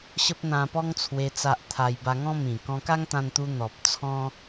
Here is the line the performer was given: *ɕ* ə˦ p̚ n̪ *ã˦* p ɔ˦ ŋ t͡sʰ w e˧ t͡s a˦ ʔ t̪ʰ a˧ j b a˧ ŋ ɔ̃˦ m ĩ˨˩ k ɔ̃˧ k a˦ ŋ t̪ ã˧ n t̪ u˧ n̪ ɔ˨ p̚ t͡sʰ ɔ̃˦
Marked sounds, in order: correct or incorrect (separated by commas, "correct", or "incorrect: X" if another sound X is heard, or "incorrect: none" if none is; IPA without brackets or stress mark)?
correct, incorrect: ã˧